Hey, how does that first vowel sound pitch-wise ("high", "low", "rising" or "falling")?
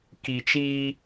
low